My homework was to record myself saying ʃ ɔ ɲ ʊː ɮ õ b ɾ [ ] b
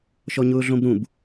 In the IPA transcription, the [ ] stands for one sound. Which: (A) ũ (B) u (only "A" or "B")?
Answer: A